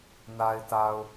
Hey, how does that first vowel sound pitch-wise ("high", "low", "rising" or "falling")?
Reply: low